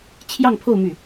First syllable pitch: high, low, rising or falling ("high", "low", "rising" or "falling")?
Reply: falling